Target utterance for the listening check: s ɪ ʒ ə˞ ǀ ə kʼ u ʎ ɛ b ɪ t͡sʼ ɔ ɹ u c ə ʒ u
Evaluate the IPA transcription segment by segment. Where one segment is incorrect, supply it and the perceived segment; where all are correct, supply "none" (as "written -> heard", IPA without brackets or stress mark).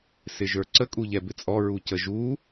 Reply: none